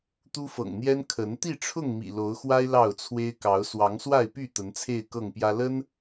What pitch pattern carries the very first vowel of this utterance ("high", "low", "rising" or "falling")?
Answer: high